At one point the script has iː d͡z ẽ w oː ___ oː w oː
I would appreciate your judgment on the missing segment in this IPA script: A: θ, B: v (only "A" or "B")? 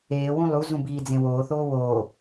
A